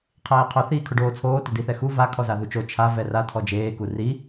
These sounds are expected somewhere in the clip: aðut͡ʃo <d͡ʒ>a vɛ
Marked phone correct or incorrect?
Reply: incorrect